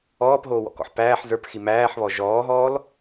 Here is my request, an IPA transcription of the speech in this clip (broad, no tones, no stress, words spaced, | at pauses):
ɔːpɦoːwɔ̰kɔ̰ħ pæːħ zə˞pxi mæːħβɔ ʒɔːɦɔːl